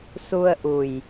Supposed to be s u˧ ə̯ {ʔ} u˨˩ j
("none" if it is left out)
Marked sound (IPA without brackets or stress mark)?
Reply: ʔ